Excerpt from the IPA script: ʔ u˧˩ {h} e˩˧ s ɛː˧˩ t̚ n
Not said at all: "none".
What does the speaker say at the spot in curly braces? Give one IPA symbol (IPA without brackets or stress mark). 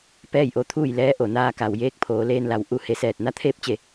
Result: h